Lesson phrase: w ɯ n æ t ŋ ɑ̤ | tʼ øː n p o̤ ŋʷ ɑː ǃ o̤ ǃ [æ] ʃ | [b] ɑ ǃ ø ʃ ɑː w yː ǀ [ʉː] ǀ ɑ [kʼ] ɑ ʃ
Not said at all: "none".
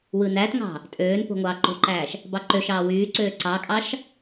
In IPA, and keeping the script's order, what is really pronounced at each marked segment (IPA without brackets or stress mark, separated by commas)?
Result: æː, b, øː, kʼ